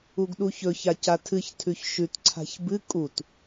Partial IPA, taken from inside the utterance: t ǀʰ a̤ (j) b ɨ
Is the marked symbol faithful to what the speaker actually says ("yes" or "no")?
no